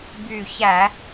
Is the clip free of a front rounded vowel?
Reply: no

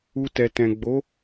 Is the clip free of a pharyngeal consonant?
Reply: yes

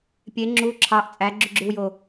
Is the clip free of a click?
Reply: no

